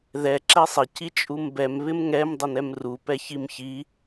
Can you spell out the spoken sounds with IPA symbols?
ðɛ ǁɛsˤɪ cit͡ʃʼumbɛm βɪmŋɛm dˤɪnɛmru pɛçimçi

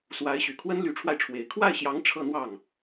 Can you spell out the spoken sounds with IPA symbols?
swa˧˥ɪ̯ɕy˨˩kʰwə˥n ly˧˥ʈ͡ʂʰwa˧ɪ̯ʈ͡ʂʰwe˨˩ɪ̯ kʰwa˥˩ɪ̯ɕjɑ˧˥ŋ ʈ͡ʂʰɤ˥˧n̪wɑ˥˩ŋ

